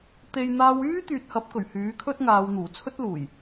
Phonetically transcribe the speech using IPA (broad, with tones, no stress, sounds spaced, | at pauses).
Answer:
t̪ e˨ j n̪ aː˧ w yː˥ t̪ yː˨ t̚ h ɐ˨˥ p̚ k ɵ˨˩ ɥ h yː˨˥ kʰ ɵ˥ t̚ ŋ aː˨˧ w n̪ uː˨˩ t͡sʰ ɵ˥ t̚ l uː˨˩ j